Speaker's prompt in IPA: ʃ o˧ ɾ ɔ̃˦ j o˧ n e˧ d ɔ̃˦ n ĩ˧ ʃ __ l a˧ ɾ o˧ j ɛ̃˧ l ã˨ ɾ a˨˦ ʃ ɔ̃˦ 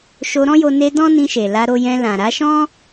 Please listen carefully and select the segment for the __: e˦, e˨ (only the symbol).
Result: e˨